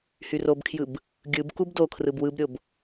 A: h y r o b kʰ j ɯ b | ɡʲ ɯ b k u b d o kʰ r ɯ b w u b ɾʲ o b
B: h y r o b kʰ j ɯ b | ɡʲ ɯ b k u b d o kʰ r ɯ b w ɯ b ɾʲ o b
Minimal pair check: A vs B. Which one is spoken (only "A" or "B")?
B